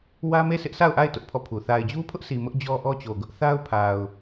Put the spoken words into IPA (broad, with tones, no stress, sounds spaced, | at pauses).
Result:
w ä˦ m e˦˨ sʰ ɪ˦ ʔ sʰ a˦˨ ʊ̯ ʔ a˦˨ ɪ̯ t ʊ˦ ʔ pʰ ɔ˦˨ pʰ u˨ θ a˨ ɪ̯ d͡ʑ u˦ pʰ ʊ˦ ʔ sʰ i˨ m ʊ˦ ʔ d͡ʑ ɔ˦ ʔ ɔ˦ t͡ɕ o˨ ɡ ʊ˦ ʔ θ a˦ ʊ̯ pʰ a˨ ʊ̯